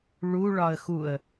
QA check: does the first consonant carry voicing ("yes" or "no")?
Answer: yes